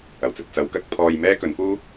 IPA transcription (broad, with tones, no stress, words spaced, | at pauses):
ɐ˨˩wt͡sɵ˨t̚t͡sɐ˨˥wkɐ˨˥k̚ pʰɔː˧jmɛː˥kɵ˨˥nfuː˥